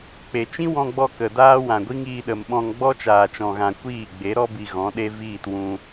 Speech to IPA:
k͡pe˨t͡ʃĩ˦wɔ̃˧ɡ͡bɔ˧ kə˨daː˦wã˨ɡʷi˦ŋ iː˧ɗə˨mɓɔ̃˧ŋ ɡ͡bɔ˦t͡ʃaː˨t͡ʃɔ̃˨ɣã˨ kʷiː˦˨ ɡ͡be˨˦ɾɔ˦bi˨ ɣɔ̃˨˦ɗe˦ viː˦˨twũ˧

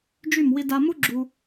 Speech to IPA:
d͡ʒy˧˩m wi˧da˧ mu˥ɡ͡ǁu˧

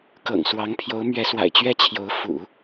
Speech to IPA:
kɤ̰˨˩ŋswɑ˧˥ŋpʰjo˧˥ʊ̯ mɥɛ˧˥swa̰˨˩ɪ̯t͡ɕɥɛ˥˩t͡ɕʰjo˧˥ʊ̯ fṵ˨˩˦

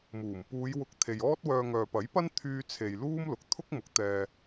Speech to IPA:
muː˨˩m puː˨˧jwʊ˨˥k̚ t̪ʰe˨jɔː˥t̚wœː˧ ŋœː˨pɐ˨˥j pɐ˥n t̪ʰyː˧t͡sʰe˨j luː˥mlʊ˨k̚ t̪ʰʊ˥k̚mʊ˨˥k̚ t̪ɛː˧

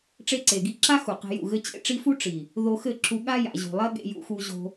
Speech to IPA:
ʈ͡ʂe˧ǀe˨ɡi˧ǁa˦ xu˨qe̤˧jṵ˦˨ ɣɘ˧t͡ɕḛ˧ ʈ͡ʂi˧fu˦ ʈ͡ʂi˨ | ðo˧xɘ˦˨ǁu˧ ɠa˦ja̰˨ʑṳ˨lˠɐ˦ ɠḛ˧jṵ˧xu˧ʑo̤˧

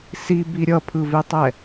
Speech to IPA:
sibi ɾʲʌpʰɯvetˤɛ

